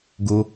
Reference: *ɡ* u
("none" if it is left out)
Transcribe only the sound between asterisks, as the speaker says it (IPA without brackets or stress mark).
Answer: ɡ